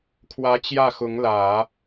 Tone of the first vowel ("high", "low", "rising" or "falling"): rising